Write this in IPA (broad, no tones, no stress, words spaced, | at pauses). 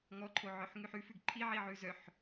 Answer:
ŋɔǃʰoʕœħ ŋʉħʉfʉɡ ǃʰiʕi ʕʉzœħ